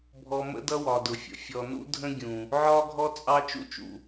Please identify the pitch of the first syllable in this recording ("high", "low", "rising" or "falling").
low